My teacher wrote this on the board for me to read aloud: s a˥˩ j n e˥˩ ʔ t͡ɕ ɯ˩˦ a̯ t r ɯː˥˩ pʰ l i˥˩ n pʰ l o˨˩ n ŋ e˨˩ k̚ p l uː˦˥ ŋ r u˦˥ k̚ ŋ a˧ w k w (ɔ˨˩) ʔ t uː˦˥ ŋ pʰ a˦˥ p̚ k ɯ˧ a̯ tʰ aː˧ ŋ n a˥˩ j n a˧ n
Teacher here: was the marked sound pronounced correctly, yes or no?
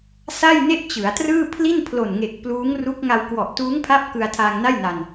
yes